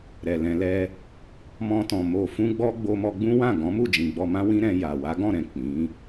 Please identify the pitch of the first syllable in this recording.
low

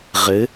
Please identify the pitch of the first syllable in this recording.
rising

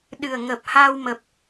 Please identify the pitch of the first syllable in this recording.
low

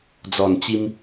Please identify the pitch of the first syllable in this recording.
low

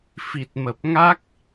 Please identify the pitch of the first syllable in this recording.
low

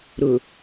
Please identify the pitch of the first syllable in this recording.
low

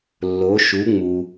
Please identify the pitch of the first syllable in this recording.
rising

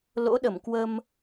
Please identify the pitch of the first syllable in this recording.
rising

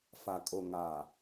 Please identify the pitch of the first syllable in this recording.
low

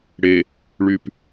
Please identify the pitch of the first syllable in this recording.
low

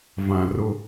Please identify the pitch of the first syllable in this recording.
low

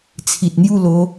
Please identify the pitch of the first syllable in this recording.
low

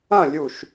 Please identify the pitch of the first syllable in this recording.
falling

